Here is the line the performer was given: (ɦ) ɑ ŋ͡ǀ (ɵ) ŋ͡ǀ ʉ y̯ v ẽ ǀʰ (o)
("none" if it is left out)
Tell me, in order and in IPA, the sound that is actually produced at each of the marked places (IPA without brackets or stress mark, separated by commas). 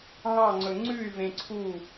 ɦ, ɵ, u